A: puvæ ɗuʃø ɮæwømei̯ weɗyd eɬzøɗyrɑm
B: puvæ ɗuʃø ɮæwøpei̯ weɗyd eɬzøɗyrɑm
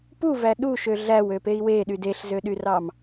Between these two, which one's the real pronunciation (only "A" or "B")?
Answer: B